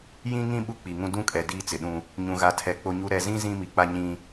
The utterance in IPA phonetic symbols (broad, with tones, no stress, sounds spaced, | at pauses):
j ĩ˦ ŋ ĩ˦ ɓ u˦ k͡p i˨ ŋ ũ˦ d ũ˦ kʼ ɛ˨ d iː˦ t͡s ɪ˨ ɗ ũ˦ | ɲ ũ˨ ɣ a˨ tʰ ɛ˨ k͡p o˦ ɲ u˦ ɾ ɛ˨ z ĩ˦ z ĩ˦ m i˨ k͡p a˦ ɲ ĩ˦